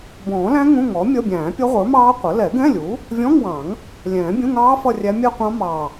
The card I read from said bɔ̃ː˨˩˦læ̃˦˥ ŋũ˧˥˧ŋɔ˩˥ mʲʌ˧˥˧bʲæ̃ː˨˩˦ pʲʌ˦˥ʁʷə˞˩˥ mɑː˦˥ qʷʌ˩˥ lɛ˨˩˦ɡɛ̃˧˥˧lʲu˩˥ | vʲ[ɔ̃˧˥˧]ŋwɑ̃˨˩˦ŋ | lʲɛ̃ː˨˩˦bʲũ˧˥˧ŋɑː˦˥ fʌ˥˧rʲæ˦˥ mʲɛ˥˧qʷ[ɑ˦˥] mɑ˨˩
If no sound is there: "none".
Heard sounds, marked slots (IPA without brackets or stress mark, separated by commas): ɔ̃˧˥˧, ɑ̃˦˥